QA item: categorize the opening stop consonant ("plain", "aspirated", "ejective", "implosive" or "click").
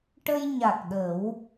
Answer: plain